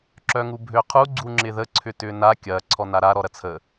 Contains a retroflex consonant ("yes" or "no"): no